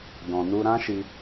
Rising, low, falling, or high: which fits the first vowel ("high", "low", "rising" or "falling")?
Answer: low